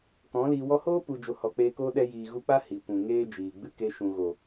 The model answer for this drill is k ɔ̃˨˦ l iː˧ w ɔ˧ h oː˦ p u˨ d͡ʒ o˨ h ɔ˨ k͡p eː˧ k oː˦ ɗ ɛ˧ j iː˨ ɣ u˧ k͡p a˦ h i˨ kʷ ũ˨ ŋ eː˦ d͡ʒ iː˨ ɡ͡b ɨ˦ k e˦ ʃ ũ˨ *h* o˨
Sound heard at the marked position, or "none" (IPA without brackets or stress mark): ɣ